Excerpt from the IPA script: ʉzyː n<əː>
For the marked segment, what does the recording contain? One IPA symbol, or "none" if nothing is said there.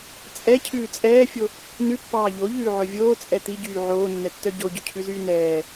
ɛː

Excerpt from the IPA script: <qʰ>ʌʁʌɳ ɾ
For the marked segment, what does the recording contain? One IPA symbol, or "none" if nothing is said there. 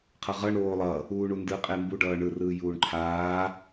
qʰ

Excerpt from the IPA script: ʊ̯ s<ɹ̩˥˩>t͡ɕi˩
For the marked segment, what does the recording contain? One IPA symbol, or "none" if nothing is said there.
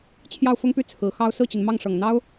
ɹ̩˥˩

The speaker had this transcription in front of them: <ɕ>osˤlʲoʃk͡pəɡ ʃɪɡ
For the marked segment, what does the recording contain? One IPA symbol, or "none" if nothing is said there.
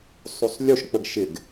sˤ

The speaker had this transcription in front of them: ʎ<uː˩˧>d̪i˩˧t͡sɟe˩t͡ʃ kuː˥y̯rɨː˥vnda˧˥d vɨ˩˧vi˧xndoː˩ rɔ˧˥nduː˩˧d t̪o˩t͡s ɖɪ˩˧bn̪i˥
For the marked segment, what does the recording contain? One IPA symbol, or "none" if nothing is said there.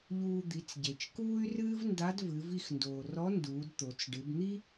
uː˧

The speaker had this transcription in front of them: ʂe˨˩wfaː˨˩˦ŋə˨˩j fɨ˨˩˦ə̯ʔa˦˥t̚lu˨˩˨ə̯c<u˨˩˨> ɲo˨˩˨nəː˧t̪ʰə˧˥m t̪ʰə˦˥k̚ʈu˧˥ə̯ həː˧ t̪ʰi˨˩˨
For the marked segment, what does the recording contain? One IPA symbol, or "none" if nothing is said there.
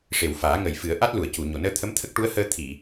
u˨˩˨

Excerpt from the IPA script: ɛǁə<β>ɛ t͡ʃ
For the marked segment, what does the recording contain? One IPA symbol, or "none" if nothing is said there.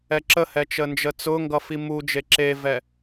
h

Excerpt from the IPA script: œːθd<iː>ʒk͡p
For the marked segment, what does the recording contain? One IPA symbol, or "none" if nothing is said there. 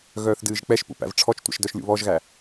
ɨː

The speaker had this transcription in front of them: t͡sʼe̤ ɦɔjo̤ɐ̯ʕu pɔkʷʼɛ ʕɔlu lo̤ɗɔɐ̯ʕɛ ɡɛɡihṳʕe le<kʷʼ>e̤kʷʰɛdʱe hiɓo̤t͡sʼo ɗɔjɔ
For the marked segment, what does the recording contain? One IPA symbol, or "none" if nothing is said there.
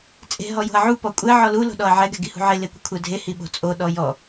kʷ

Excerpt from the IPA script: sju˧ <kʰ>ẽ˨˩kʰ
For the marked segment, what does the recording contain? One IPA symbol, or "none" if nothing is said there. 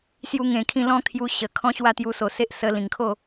ŋ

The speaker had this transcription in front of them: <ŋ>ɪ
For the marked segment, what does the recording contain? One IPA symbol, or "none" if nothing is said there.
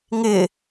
ŋ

